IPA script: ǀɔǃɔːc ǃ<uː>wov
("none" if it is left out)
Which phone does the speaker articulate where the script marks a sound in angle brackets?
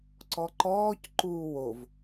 uː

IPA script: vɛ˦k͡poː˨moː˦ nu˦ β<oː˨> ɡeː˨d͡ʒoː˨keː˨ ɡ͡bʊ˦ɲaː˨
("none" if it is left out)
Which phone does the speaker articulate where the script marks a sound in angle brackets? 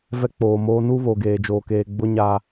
o˨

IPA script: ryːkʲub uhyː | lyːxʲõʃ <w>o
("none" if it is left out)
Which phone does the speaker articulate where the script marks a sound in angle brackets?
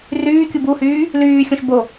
b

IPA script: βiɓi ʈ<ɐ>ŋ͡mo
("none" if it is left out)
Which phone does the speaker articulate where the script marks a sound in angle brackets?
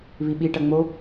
ɐ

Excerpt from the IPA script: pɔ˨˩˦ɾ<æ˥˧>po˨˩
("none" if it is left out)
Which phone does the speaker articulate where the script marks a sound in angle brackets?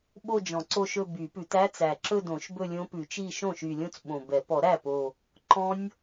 æ˥˩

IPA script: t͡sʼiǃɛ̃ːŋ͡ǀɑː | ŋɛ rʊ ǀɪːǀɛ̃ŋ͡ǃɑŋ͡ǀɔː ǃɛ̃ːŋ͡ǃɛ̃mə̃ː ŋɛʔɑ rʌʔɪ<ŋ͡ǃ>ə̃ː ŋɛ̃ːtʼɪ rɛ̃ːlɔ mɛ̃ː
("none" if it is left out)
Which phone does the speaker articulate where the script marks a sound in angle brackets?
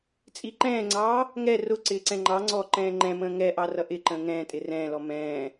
ǃ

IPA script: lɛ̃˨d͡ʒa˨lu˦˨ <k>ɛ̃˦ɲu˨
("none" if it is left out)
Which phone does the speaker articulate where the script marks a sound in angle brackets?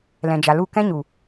k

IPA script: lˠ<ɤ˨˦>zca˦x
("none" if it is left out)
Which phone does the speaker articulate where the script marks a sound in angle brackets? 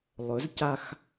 ɵ˨˦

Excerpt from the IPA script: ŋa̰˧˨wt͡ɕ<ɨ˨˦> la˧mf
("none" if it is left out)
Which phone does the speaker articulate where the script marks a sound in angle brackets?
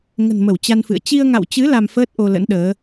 ɨ˨˦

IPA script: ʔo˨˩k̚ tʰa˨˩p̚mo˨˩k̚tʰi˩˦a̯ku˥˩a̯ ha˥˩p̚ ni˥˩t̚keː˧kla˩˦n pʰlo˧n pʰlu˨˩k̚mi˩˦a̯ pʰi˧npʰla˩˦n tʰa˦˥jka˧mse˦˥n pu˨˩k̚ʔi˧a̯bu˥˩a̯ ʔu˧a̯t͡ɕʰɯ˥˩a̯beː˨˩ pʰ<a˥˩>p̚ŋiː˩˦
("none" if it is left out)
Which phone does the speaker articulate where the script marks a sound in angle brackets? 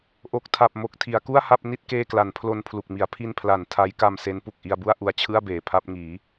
a˥˩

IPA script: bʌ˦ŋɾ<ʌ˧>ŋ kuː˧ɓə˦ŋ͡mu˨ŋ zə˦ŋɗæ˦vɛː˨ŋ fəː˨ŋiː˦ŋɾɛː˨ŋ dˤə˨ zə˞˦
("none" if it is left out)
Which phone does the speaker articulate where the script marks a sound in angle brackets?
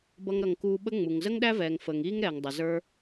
ʌ˧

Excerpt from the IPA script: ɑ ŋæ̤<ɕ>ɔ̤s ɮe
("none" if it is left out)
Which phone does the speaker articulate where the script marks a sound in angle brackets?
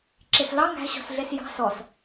ɕ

